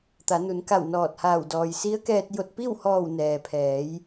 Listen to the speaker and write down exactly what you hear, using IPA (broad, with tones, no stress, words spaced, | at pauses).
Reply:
t̪a˩˧nu˩˧nka˧˩w nɔː˧˩t̚haː˧˩w dɔː˩jsi˧˥ə̯kɛː˧t̚ jo˧˩t̚pi˥˨whɔː˧˩w nɛː˩pʰɛː˩˧j